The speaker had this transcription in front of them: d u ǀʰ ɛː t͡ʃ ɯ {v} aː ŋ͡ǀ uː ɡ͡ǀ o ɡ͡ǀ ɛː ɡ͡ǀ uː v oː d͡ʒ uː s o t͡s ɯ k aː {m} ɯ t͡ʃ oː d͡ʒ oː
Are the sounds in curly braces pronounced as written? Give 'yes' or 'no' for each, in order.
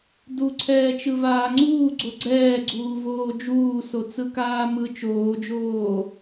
yes, yes

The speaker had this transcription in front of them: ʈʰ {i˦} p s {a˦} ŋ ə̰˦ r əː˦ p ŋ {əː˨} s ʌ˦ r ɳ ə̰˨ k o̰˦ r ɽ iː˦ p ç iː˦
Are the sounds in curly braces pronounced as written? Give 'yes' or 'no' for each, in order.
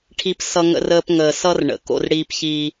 yes, no, yes

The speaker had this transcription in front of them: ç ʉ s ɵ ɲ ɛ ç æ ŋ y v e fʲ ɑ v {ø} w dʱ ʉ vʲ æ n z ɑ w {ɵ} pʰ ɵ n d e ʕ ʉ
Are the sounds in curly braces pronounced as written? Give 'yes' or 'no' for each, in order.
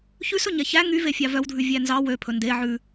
no, no

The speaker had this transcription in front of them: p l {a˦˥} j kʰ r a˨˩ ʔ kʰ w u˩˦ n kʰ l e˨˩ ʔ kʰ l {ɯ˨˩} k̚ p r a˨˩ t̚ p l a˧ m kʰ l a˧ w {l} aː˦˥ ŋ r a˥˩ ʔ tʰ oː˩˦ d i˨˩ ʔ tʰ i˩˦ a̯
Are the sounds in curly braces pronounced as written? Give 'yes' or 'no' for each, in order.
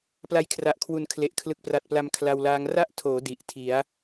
no, yes, yes

